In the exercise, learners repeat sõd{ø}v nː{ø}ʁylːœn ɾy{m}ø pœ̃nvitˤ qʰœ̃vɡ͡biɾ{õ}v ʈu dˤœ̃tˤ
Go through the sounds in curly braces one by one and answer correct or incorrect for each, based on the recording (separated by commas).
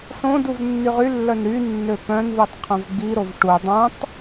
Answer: incorrect, incorrect, incorrect, incorrect